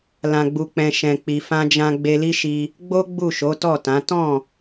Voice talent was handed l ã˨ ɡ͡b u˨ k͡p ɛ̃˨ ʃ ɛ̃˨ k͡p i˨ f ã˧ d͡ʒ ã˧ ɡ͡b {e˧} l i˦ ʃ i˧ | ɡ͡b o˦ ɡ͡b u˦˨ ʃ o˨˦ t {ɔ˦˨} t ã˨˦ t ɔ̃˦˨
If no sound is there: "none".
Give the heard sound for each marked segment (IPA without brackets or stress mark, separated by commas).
e˧, ɔ˦˨